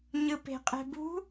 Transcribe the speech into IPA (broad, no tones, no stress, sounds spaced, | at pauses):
ɲ ɯ p e̤ qʼ ɛ̤ b ṳ